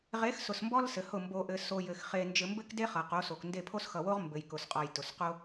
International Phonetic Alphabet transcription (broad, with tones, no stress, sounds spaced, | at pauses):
ʁ e˨˦ x s ʊ˨ s m b ɔ˦ l s ɘ˨ h ʊ˦˨ m b o˨ ʔ ɘ˨ s o˨ j ɘ˨ x χ e˨ n d͡ʒ ɘ˨ m b ɘ˦ k d e˦ χ ʌ˨ q o˨˦ s o˨ k n d e˦˨ pʰ o˦ s x ʌ˨ w o˦ ʁ m b ɘ˨ j k ʊ˨ s qʼ ɔ˨ j t ʊ˨ s q o˦